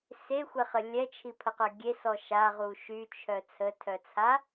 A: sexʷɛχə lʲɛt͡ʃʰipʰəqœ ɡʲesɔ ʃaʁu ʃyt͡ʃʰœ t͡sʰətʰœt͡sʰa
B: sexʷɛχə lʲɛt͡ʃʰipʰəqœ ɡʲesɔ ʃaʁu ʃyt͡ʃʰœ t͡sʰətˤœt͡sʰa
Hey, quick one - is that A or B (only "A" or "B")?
A